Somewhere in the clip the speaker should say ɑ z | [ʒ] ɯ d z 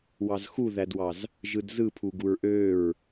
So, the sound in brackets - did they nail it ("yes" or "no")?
yes